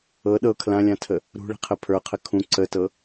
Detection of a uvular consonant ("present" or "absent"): present